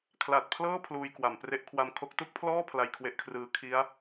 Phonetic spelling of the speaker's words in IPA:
kʰla˨˩t̚pʰlɤː˥˩ pʰluː˧j kwa˩˦mpre˦˥ʔ kʰwa˧mkʰo˦˥k̚ tu˥˩k̚pʰlɔː˥˩ pʰla˧jkʰwe˦˥ʔkʰrɯː˦˥ kʰi˦˥a̯

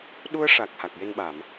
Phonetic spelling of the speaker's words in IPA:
ɗu˧ə̯ ʂa˨˩k̚ ha˨˩k̚je˧nɓa˨˩˨m

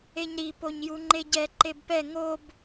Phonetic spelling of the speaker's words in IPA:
eɲɾi poɲjuŋ͡ǃeɟɛ ǃebpɛ ŋob

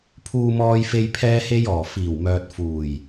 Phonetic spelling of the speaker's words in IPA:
pʰuː˧mɔː˧jfe˧j pʰɛː˧he˧jɔː˨˩ fiː˨˩wmœː˨t̚ fuː˨˩j

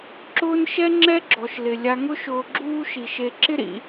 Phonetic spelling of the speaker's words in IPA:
ǁʊː˥n ʃɛ˥ŋ͡ǁɛ˥ ɡ͡ǁɔ˩ʃlɪ˩ lʲa˨ŋʊ˦ʃʊː˨ ɡ͡ǁuː˦ʃi˩ʃe˨ ǁɪ˦ɾḭ˨

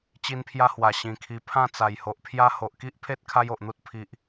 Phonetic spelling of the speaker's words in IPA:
t͡ɕi˦npʰja˦hwa˨˩ ɕĩ˨˩kʰi˧ pʰã˥˧t͡sa˨˩jho˨ʔpʰja˦ ho˨ʔki˦ʔpʰe˦t̚ kʰa˦jo˨ʔn̪u˦t̚ pʰi˨ʔ

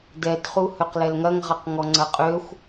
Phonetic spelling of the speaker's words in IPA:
dɛdχu høqlɛlŋɐŋʁɐq ŋɔŋ͡ǀɐqʼøxʷ

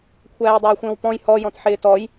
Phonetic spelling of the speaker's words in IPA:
kʷʰæːjdˤæɐ̯xʷə̃ːwpɔ̃j hɔjɔ̃t ħɪːtɔj

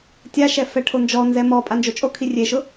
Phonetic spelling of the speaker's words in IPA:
tʲaʃɛ fɛʈʰond͡ʒɔnzɛ mɔ pʼand͡ʒot͡ʃʼokʰi rʲeʃʊ

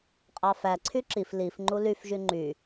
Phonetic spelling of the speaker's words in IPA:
qʼɑfæǀʰy ǁif lif ŋ͡ǃulyfʒy ŋ͡ǃy

